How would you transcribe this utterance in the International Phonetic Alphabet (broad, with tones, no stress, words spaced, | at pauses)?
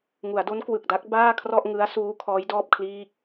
ŋu˩˦a̯do˦˥n kwɯ˨˩k̚da˦˥k̚baː˥˩kʰrɔ˥˩ʔ ŋɯ˦˥a̯suː˦˥ kʰɔː˦˥jdɔː˥˩p̚kʰliː˥˩k̚